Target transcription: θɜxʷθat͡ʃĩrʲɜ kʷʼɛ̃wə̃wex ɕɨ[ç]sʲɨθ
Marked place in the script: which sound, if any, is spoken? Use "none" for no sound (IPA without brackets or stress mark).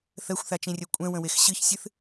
ç